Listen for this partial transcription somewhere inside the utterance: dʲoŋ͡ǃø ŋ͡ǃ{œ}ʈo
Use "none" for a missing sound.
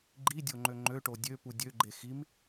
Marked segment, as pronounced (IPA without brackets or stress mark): ø